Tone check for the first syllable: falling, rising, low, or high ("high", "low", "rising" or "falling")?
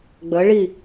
rising